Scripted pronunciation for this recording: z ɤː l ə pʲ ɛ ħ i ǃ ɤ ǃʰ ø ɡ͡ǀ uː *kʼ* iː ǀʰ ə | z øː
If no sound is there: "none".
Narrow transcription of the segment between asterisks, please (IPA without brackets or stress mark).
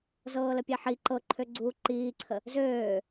ǃ